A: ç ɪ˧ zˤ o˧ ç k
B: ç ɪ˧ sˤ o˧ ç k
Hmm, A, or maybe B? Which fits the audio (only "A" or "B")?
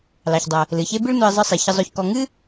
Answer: A